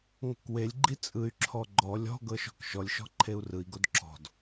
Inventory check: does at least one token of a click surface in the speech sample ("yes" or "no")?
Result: yes